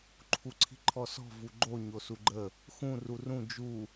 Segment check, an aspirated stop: present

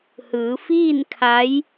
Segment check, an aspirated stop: present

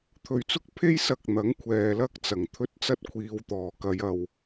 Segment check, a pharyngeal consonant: absent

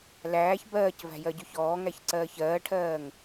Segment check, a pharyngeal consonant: absent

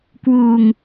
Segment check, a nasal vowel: absent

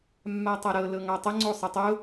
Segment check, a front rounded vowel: absent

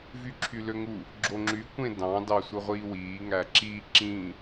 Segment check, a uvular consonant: present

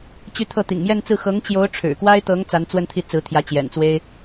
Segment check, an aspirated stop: present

